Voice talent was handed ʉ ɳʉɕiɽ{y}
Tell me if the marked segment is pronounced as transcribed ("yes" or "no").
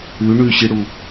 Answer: no